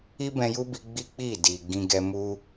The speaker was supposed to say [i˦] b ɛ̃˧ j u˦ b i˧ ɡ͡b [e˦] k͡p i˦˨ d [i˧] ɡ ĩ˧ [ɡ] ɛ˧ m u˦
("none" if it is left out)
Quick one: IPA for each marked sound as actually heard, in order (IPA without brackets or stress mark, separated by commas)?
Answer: i˦, i˦, i˨, ɡ